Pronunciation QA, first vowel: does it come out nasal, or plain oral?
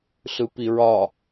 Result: oral